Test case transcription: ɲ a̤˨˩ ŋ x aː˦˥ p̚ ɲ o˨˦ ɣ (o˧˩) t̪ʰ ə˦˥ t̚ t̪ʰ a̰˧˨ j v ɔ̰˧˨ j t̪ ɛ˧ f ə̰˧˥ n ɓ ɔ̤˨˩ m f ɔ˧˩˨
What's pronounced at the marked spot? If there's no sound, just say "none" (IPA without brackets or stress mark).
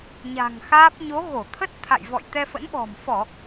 o˧˩